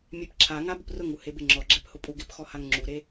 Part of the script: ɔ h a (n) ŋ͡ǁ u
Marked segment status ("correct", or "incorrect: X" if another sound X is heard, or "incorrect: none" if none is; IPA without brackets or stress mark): incorrect: ŋ